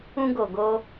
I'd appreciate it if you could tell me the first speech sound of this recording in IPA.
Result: ũ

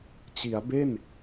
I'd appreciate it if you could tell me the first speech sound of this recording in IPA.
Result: t͡ɕ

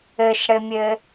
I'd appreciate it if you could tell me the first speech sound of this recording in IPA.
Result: ɘ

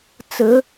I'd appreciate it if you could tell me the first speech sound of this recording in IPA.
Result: t͡s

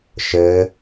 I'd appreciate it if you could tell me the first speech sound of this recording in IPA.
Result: ʃ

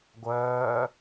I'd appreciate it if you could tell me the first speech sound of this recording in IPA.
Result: ɡʷ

